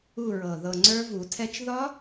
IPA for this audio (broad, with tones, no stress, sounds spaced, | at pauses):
u˦˨ ɹ ɤ˨˩ ð ɤ˨˩ ŋ͡ǀ ə˞˦˥ v u˨˩˦ tʰ ɛ˦˥ t͡ʃ ð ɒ˦˥